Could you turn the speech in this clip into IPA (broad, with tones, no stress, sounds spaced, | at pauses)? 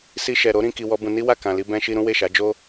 s i˧ ʃ ɛ˨ ɾ o˨˦ ɾ ĩ˧ k i˧ w ɔ˦ b ũ˧ n i˦ w a˦˨ k ã˨ l i˧ b ɛ̃˧ ʃ i˧ ɾ ũ˦ w e˦˨ ʃ a˨˦ d͡ʒ o˦